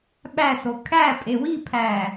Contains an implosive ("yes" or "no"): yes